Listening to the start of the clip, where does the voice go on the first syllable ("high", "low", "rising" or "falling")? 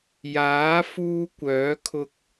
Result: rising